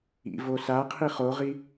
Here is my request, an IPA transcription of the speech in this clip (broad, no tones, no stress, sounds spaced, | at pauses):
ḭ v o s a qʰ i χ o ʁ i